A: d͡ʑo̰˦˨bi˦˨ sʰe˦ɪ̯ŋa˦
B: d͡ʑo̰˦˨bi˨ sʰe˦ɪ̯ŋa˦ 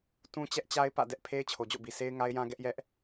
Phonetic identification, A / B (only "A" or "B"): B